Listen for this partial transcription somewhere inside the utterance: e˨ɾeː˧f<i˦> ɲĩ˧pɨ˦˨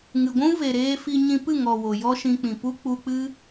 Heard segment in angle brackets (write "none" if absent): i˧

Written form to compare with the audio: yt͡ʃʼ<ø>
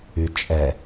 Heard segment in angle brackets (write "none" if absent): ɛ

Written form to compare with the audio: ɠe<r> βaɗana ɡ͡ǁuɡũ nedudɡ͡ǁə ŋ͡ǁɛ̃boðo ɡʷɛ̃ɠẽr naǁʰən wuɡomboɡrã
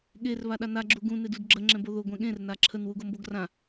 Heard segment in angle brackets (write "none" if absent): r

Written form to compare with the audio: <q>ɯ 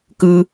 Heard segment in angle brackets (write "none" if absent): k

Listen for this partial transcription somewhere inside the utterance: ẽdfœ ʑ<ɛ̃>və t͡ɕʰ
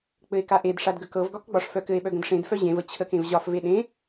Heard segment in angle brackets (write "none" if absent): ẽ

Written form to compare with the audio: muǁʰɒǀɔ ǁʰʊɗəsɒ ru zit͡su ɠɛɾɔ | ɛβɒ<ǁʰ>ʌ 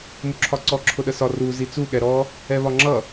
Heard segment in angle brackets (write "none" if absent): ŋ͡ǁ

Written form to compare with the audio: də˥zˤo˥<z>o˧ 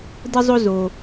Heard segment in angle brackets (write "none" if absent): z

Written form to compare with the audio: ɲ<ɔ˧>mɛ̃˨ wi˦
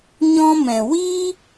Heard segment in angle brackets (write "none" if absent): ɔ̃˧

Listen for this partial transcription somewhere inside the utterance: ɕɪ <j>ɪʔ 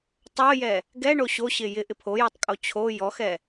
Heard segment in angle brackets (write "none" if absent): j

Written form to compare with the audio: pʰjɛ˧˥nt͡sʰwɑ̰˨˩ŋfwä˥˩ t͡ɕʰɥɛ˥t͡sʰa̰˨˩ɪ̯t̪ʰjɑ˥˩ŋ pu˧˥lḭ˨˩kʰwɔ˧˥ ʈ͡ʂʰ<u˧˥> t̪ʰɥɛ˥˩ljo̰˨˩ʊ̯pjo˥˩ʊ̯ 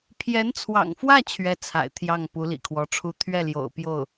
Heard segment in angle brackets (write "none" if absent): u˧˥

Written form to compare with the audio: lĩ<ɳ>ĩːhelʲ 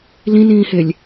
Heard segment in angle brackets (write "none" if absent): n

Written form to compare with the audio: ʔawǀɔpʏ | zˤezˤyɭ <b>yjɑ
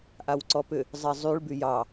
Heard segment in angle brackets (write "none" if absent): b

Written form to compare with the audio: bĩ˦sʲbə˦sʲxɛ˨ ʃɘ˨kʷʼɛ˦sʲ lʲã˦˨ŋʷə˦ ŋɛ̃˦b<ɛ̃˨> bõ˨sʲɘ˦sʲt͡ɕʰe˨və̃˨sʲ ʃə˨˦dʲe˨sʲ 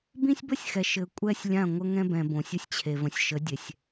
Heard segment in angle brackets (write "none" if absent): ɛ̃˨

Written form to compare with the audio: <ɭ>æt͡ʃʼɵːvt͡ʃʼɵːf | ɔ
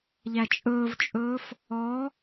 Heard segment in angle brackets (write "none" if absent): ʎ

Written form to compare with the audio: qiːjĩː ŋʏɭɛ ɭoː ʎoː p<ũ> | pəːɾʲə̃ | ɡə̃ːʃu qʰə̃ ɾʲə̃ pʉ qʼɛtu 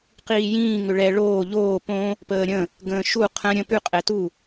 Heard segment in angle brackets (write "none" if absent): õ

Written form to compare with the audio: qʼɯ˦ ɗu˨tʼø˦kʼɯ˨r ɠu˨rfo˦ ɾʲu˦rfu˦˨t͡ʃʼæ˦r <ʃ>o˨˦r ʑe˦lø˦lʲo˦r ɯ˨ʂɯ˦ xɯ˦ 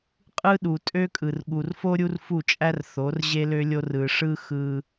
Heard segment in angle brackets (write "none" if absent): θ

